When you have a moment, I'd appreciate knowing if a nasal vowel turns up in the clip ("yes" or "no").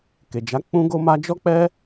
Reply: yes